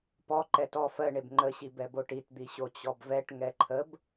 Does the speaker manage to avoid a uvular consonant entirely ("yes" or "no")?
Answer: yes